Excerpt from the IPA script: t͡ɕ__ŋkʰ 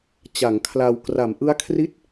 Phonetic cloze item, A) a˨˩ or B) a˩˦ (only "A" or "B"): B